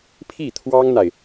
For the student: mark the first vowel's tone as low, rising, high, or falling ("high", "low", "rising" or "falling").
falling